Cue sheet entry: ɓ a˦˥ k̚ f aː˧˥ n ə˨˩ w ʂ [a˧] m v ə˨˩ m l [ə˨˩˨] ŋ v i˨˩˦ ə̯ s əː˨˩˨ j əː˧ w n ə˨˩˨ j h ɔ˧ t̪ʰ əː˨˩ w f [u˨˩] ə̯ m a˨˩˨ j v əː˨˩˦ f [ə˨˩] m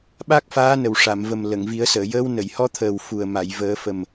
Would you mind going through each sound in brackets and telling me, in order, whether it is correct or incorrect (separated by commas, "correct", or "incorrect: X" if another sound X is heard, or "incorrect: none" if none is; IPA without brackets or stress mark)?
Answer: incorrect: a˨˩˨, correct, correct, correct